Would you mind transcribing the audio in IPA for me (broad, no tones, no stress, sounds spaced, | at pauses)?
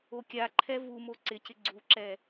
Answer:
o kʲ a ǃʰ ɛ v u m o ǀ ɪ c ɪ ɡ͡ǀ u ǁ ɛ